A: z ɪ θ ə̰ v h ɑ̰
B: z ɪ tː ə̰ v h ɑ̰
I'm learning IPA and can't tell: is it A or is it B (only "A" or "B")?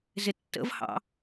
B